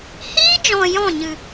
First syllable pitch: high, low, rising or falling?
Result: high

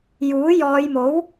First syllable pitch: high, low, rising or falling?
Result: rising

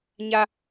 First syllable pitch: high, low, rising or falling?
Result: high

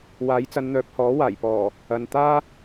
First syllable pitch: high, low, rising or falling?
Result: rising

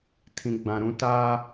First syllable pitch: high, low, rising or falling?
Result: low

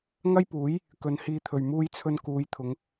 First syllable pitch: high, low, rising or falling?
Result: high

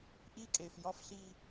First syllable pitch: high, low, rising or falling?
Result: high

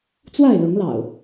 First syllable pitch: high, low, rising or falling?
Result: falling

